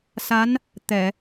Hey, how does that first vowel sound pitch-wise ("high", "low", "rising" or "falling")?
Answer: rising